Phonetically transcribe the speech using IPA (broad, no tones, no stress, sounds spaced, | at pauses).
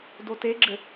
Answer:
d o t e ɡ͡ǁ ɘ